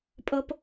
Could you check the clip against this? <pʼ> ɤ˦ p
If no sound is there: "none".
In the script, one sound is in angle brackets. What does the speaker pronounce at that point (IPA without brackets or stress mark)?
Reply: pʼ